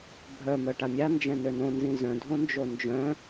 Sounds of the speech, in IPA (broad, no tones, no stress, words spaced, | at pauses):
bʱœ mœʈamʲa nd͡ʒɛ̃nønõ nzĩzœ̃ dʱõnd͡ʒond͡ʒœ̃